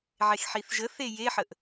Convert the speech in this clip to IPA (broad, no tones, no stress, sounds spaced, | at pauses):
ʕ e x ħ i θ ʒ ə θ e j e ħ ə ʔ